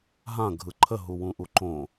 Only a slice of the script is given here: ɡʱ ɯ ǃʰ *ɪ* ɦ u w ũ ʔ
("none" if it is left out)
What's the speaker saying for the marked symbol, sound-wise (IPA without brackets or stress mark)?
ə